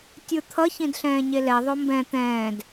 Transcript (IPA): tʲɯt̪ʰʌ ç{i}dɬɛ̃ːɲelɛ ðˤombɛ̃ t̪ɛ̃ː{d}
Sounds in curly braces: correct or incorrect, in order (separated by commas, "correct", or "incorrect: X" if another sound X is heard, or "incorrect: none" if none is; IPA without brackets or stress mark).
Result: incorrect: ĩ, correct